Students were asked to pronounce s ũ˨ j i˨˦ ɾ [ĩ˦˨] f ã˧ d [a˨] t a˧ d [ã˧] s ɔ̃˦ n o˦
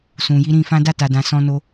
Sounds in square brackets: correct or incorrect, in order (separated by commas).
correct, incorrect, correct